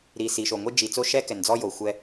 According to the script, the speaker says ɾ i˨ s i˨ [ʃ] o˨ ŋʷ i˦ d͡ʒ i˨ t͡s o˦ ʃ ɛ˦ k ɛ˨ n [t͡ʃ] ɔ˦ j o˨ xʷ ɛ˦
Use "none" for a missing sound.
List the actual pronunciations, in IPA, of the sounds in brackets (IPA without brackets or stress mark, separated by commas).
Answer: ʃ, d͡z